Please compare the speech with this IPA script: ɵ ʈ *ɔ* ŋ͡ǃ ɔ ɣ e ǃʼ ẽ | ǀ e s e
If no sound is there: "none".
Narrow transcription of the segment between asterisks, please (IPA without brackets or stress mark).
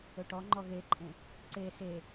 ɔ